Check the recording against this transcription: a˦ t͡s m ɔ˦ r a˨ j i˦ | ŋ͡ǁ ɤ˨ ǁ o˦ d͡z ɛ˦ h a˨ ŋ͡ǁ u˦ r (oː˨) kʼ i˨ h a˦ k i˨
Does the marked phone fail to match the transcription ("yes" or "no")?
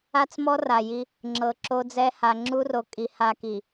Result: yes